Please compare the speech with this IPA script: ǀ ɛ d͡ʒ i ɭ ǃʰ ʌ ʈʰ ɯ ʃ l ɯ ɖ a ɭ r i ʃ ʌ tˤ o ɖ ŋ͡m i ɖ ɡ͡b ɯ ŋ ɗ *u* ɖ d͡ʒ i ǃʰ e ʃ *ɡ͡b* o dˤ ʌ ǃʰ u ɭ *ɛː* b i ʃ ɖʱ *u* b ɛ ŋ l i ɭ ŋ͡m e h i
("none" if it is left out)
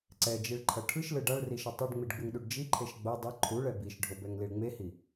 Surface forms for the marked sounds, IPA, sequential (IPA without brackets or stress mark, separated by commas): u, ɡ͡b, ɛ, o